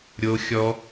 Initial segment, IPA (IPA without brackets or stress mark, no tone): ɾʲ